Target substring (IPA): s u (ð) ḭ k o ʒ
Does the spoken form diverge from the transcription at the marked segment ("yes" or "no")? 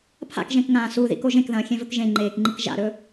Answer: no